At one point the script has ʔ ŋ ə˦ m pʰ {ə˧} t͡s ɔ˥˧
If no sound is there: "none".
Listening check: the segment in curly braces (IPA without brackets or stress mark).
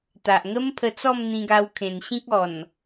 ə˧